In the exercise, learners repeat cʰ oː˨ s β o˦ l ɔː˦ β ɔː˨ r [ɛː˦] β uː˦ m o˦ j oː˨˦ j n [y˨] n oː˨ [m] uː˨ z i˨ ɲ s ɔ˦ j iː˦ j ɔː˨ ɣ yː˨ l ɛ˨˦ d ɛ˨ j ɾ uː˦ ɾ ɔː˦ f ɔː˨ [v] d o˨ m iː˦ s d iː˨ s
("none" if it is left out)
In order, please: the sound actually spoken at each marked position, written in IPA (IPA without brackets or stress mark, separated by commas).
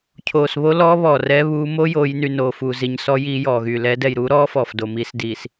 ɛː˦, y˨, f, f